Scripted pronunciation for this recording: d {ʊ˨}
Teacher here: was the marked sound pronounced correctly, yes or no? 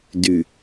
no